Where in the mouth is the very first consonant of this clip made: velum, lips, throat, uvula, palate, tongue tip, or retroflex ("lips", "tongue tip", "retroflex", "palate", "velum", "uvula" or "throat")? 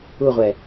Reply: uvula